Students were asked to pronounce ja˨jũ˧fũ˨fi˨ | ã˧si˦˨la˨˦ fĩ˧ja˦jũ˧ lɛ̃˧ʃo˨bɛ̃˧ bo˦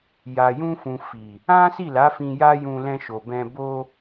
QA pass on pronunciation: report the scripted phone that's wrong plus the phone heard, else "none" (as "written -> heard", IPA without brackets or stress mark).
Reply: ã˧ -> ã˦